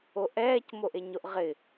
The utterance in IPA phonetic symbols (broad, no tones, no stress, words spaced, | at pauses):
oʔɛːc moʔeɲoʔʁɪ